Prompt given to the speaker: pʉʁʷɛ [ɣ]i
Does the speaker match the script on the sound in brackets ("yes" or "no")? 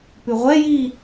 no